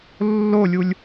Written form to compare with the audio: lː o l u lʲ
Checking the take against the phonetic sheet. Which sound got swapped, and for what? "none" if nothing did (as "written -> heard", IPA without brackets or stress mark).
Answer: l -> lʲ